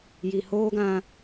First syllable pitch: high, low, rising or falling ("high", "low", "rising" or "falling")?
low